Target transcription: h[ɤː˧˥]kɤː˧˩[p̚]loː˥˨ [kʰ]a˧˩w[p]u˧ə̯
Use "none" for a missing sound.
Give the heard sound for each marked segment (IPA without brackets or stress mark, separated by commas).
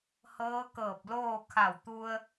ɤː˧˥, p̚, kʰ, t̪